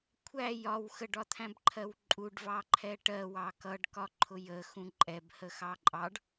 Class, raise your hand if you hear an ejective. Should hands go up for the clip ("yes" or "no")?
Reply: yes